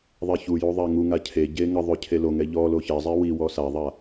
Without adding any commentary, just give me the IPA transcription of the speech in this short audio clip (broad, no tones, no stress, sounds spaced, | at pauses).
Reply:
ðˤ ɛ ç u j u ðˤ a ŋ u ŋ a cʰ e ɟ e ŋ ə ðˤ ø cʰ e l o ŋ ɛ ʎ ɔ l o ç ɛ zˤ ɛ w i w ɔ s a ðˤ a